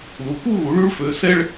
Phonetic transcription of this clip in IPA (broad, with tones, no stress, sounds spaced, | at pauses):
l u˨˦ k u˥ ɣ u˨˦ ɭ y˥ ɭ f ø˨˦ s ɛ˥ ɭ